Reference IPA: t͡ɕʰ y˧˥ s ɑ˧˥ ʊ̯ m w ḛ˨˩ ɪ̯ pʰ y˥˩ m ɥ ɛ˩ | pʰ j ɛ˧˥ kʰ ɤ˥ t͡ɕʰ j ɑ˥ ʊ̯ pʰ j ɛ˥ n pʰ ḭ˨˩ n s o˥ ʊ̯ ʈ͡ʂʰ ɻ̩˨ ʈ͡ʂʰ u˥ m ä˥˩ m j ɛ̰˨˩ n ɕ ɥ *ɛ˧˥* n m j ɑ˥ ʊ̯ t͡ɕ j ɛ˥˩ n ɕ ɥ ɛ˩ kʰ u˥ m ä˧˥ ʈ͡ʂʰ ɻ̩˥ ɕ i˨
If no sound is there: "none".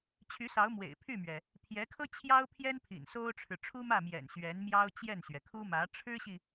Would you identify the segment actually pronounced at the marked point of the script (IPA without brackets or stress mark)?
ɛ˧˥